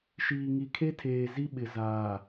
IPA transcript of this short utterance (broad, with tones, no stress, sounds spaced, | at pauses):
ʃ iː˨ ŋ i˨ kʰ e˦ tʰ eː˨ z i˦ ɓ ɪ˨ z aː˨